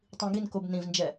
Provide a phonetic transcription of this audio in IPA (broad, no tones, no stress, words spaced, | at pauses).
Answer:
tˤĩɡinkob nĩvnd͡ʒɛ